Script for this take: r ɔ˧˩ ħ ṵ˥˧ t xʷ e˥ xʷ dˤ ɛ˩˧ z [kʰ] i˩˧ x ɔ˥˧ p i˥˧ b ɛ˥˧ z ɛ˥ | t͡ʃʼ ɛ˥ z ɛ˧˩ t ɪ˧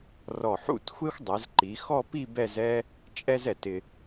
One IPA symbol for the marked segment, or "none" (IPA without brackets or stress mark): ǃ